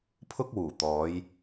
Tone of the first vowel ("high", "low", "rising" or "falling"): high